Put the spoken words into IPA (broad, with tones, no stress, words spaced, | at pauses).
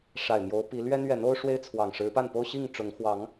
ʂa˨˩ɪ̯mjo˨˦ʊ̯pi˨˦ lɥɛ˦n ɥɛ˨˦no˦ʊ̯ʂwe˦ɪ̯ t͡sʰwɑ˨˩ŋ ʂɻ̩˨˦pa˥˨npo˦ʊ̯ ɕi˥˨ŋʈ͡ʂʊ˨˦ŋ xwɑ˨˦ŋ